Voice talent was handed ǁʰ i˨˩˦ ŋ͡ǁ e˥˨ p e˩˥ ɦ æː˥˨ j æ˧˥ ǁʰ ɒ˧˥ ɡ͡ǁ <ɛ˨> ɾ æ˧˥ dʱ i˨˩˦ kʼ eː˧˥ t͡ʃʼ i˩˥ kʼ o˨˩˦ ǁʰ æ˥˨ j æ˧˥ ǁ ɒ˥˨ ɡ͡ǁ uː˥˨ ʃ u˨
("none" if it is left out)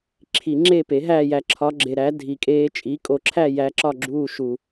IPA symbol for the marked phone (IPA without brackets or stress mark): e˨